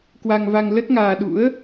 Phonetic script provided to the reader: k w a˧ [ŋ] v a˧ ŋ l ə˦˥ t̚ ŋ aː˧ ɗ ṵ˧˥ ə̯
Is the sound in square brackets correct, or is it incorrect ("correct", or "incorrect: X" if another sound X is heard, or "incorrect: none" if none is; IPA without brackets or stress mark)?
correct